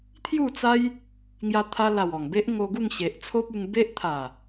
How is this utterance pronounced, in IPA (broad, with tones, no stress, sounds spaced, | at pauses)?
t̪ʰ j u˥˧ t͡s a˦ j | ŋ j a˧ t̪ʰ a˧ l a˨˩ w ɔ˨˩ ŋ b e˦ ʔ ŋ o˧ ɡ u˥˧ ŋ ɕ e˨ ʔ t͡sʰ o˦ p̚ u˧ ŋ b e˦ ʔ t̪ʰ a˨˩